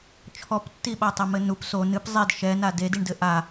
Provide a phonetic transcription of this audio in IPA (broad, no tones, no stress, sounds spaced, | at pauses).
t͡ʃʰ ɔ p tː i ɓ a tˤ ɛ m ɘ n u p s o n ɨ p zˤ i d ʃ ɛ n a d e d i ɳ d ɘ ʔ a